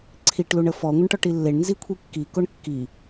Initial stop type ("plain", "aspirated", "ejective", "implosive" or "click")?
click